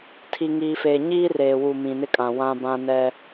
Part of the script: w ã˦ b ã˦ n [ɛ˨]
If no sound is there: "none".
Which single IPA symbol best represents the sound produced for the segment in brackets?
ɛ˦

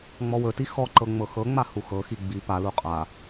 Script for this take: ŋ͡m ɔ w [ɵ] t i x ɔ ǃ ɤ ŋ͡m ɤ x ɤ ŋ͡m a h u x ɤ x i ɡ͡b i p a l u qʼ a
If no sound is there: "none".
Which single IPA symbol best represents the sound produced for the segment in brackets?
ɵ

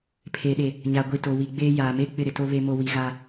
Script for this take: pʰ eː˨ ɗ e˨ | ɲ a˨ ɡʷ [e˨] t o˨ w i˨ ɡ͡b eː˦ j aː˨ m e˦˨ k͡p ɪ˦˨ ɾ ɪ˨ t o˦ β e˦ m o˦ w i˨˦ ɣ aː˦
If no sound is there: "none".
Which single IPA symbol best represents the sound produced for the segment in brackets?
i˨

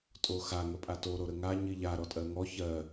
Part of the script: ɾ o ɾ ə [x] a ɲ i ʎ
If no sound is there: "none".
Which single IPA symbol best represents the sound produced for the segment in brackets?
ŋ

